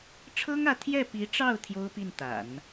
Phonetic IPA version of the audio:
ʈ͡ʂʰ ɤ˥ ŋ ä˧˥ t̪ʰ j ɛ˥˩ p i˧˥ ʈ͡ʂ ɑ˥˩ ʊ̯ t̪ʰ j o˥ ʊ̯ p i˥˩ n t̪ a̰˨˩˦ n

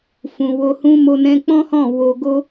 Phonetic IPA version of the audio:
f ũ˨ w o˧ h ũ˦ m o˧ n ɛ̃˧ k͡p ɔ̃˦ h ɔ̃˦˨ w o˧ ɡ o˦

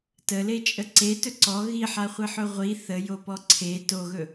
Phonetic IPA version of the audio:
t ə l e t͡ʃʼ ə ǀ e t ɵ ǀ ɔ ɣ i ħ a χʷ i ħ ɵ ʁʷ i θ ə j o p ɔ ǀʰ e t o ɣ ɵ

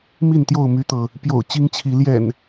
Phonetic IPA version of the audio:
m i˥˨ n t̪ j o˥˨ ʊ̯ m y˦ t̪ ɤ˨ | p j o̰˨˩ ʊ̯ t͡ɕ i˦ ŋ t͡ɕʰ i˨˦ l j ɛ̰˨˩ n

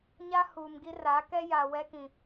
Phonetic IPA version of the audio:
ɲ a˦ h uː˨ m ɡ i˦ r a˨˦ k ɛ˦ j a˨ w ɛ˦ k ĩ˨

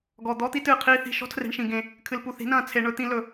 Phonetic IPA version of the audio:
ɡ ɔ˨ d̪ ɔ˧ t̪ i˧ t ɨː˨ qʰ iː˧ θ i̤˨ ʃ ɔ̤˦ tʰ r e̤˨ ɳ ʃ ĩ˨ ɡ ẽ˨ | kʰ ɨ˨ l p u˨ θ i̤˨˦ n ɐ̃ː˨ t͡sʰ e˧ ɳ ɵ˧ t̪ ĩ˧ l ɵ˨

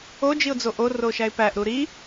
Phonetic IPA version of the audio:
o d͡ʒ i ʊ̯ d͡z o ʔ o r o ʃ æ ɪ̯ p æ ʔ ɾ u ɾ i

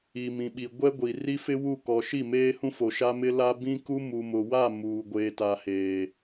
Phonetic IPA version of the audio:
i˨ m ĩ˨ ɓ i˨ ɡʷ ɛ˦ ɡʷ i˨ r i˦ f ɪ˦ w u˦˨ k ɔ˨ ʃ i˦˨ m eː˦ h ũ˦ f o˨ ʃ a˦ m ɪ˦ l a˦ b ĩ˦ k u˦ m u˨ m ʊ˨ w a˦˨ m uː˨ ɡʷ eː˨ t a˨ h eː˨

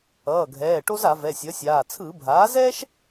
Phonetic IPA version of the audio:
ʌː˩˧˩ ɡʱ ɛː˩˧˩ ʈ o˥ z a˧˩˧ v ɛ˩˧˩ sʲ ʌ˩˥ sʲ aː˩˧˩ t͡sʰ ɯ˧˩˧ bʱ aː˩˥ z ɛː˥ ʃ

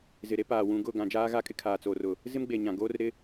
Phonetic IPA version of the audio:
z ɪ˨ ɾ e˦ p aː˨ w ũ˨ ɡ ʊ˦˨ ɡ ã˨ d͡ʒ aː˦ ɣ a˦ kʼ ɪ˦ kʰ aː˨ t͡s oː˨ r ʊ˨ | z ɪ˦ m ɡ͡b e˨ ɲ ã˨ ɡ oː˦ r ɾ ɪ˦

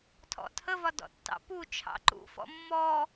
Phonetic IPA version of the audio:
tʰ ɔ̰ tʰ ə v ɒ d ɔ̰ tː ɑ̰ p u t͡ʃʰ ɑ̰ ǃ ṵ f ɔ̰ mː ɔ

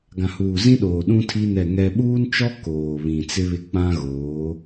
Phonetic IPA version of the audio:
ɡ ã˨ h uː˨ z ĩ˦ ɗ oː˨ ɗ ũ˦ tʰ i˦ n ɛ˦˨ ŋ ɛ˦ ɓ uː˦ n t͡ʃ ɔ˦ k oː˨ β ĩ˨ t͡s ɪ˦ β ɪ˦ k͡p ã˦ ɣ oː˨˦

